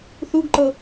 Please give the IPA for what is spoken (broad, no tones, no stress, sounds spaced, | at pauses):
θ u ɡ ǃ ɤ